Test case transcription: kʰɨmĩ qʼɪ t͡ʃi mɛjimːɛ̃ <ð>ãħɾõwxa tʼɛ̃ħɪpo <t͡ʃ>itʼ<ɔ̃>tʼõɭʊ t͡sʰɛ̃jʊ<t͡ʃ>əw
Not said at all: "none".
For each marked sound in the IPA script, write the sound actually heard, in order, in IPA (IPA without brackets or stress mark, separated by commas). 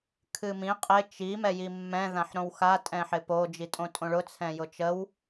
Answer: ð, d͡ʒ, õ, t͡ʃ